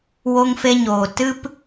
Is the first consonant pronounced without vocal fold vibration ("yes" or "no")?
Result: no